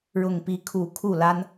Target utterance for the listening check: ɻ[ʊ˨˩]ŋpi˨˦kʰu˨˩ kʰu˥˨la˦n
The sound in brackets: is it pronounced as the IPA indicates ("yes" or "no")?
yes